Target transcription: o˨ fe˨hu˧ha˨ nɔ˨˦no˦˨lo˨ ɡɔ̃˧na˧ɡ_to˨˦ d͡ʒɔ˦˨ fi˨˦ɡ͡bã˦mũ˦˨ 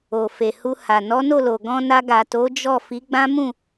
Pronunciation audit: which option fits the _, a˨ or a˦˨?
a˨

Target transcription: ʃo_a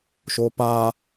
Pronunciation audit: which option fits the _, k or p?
p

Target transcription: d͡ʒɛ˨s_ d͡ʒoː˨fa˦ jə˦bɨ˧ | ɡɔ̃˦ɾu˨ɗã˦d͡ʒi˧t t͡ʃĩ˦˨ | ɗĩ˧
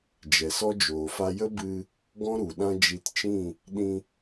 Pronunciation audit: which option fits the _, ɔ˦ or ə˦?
ɔ˦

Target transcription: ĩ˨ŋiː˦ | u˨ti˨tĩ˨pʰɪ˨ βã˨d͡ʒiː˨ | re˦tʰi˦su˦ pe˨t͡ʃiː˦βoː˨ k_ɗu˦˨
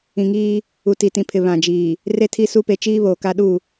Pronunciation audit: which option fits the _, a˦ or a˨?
a˦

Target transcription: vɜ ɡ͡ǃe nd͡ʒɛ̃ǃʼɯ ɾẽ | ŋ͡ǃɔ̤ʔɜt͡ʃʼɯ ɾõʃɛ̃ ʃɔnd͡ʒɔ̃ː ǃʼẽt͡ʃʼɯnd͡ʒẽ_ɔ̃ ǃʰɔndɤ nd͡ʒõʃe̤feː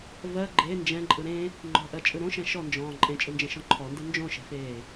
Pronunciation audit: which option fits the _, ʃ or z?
ʃ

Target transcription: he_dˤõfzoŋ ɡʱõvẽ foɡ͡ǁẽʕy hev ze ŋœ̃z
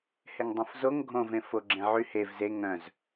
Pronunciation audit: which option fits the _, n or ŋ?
ŋ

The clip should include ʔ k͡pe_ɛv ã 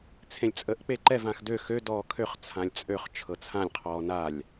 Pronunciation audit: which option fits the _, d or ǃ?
ǃ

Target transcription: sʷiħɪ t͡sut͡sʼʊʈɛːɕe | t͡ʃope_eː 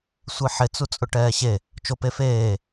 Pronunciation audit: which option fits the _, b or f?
f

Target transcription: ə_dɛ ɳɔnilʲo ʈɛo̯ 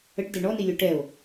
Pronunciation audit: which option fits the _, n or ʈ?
ʈ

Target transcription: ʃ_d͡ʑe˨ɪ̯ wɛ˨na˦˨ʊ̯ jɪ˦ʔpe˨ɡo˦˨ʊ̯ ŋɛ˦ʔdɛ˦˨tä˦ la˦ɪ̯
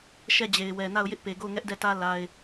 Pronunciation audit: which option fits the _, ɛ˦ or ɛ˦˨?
ɛ˦˨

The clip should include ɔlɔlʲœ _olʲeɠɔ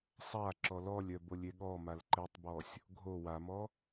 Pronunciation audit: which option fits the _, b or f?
b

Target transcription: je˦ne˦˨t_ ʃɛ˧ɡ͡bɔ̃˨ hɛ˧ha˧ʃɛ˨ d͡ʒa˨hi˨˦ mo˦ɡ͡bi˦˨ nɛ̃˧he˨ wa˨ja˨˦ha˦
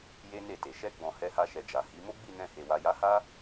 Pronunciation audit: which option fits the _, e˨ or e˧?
e˨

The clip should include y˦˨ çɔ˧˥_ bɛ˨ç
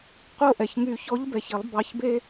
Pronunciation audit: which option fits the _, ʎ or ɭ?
ʎ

